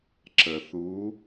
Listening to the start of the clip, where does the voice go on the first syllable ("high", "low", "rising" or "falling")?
low